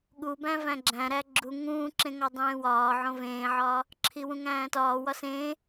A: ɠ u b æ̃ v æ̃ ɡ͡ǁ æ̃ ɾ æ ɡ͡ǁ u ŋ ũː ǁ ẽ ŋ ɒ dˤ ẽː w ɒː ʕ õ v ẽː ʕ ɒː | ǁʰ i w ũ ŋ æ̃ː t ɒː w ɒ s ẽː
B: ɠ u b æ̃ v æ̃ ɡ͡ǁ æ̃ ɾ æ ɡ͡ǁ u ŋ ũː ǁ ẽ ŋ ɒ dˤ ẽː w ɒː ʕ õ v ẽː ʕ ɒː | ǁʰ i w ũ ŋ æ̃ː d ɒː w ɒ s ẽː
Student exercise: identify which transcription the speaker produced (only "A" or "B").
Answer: A